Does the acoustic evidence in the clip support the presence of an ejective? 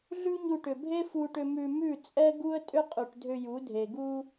yes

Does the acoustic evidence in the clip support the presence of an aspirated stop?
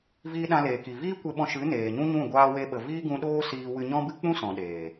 no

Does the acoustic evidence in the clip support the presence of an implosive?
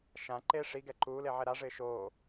no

